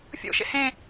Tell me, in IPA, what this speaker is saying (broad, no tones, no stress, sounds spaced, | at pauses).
fʲ o̰ ʃ ḛ h ẽ